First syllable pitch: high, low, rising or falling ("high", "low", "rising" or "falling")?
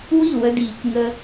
falling